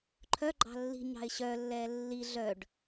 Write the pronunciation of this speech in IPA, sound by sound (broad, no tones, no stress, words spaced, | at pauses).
ǃʰœ ɡ͡ǃɑ̤lːi̤ ɲɑ̤ɪ̯ɕœlːɛː lːi ɮœɖ